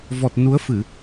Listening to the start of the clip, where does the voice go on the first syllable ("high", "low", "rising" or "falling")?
low